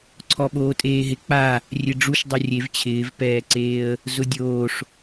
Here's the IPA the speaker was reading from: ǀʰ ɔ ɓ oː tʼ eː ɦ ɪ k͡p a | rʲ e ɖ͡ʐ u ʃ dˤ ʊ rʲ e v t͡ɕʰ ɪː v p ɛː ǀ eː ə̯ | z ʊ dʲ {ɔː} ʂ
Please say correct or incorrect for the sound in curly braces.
incorrect